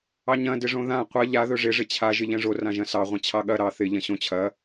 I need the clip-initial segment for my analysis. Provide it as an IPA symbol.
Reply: ɑ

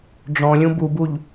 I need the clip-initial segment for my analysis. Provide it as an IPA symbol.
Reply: ɖ͡ʐ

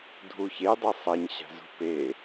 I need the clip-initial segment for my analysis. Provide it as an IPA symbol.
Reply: dʱ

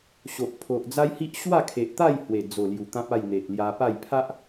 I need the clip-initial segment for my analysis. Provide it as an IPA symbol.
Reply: ɕ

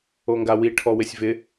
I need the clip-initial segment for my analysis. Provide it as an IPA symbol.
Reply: o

